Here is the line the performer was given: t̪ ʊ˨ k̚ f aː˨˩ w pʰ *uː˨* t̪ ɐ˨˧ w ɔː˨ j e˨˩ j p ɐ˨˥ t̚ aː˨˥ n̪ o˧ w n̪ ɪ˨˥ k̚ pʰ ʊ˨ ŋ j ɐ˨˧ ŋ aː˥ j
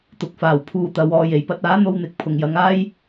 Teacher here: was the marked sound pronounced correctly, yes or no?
no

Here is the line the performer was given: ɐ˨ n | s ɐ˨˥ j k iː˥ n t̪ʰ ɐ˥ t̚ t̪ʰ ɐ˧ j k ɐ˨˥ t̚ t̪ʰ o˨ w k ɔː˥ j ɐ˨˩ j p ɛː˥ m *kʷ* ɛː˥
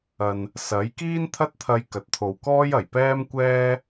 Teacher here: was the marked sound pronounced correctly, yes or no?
yes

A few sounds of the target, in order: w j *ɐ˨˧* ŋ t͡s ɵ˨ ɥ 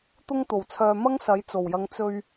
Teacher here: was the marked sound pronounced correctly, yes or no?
yes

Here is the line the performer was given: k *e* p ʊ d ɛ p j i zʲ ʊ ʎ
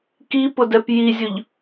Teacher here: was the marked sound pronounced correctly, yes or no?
no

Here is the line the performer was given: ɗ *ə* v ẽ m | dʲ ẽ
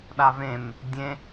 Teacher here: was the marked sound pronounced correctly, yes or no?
no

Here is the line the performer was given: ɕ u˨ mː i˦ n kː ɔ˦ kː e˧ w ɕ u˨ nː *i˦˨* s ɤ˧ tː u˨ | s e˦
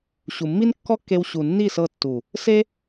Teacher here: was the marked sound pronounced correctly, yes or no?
yes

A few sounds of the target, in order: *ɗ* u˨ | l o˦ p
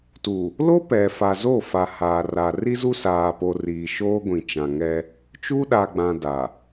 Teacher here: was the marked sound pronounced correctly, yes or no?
no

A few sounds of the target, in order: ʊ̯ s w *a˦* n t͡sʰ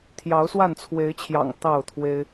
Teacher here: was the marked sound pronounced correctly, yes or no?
no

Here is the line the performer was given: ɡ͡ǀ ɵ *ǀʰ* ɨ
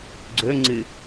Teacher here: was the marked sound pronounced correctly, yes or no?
no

